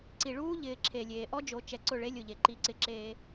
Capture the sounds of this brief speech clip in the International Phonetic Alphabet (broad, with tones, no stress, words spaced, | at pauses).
ǀi˨ɭuː˦ ʎɪː˨ ǁʰe˨lʲeː˨ ʔɔ˦d͡ʒo˨˦ t͡ʃɛ˨ǀʊ˦˨ɭe˦ lʲʊ˨ʎe˨ ǃi˦ǀɪ˦ ǁe˦